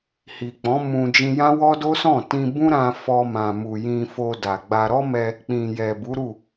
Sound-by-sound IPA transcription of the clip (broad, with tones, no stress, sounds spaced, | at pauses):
h i˨ k͡p ɔ̃˨˦ m ũ˧ d͡ʒ ĩ˧ j ã˦ w ɔ˦ d o˦ s ɔ̃˦˨ t ĩ˧ b ũ˦ ɾ ã˦ f ɔ˧ m ã˨ m u˨ j ĩ˧ f o˧ d a˨ ɡ͡b a˧ ɾ ɔ˦ m ɛ˧ | k͡p ĩ˨ j ɛ˨ b u˨˦ ɾ u˦˨